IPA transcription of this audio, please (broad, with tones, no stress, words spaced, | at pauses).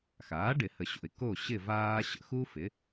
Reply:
xaː˩˥ɖɪ˨˩˦hə˨ɕo̰˨ɪ̯ ko˥˨ɕɪ˥˨ vaː˥ɕə̰˥ xu˥fɪ˩˥